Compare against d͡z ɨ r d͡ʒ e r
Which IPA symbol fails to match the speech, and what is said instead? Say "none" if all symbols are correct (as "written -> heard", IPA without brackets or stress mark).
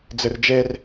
none